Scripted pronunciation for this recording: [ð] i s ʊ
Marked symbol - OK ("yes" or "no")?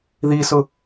yes